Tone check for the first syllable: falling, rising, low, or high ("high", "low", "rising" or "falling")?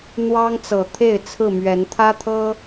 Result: high